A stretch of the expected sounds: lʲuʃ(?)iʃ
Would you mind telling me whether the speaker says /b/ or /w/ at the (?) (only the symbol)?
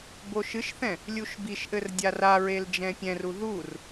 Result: b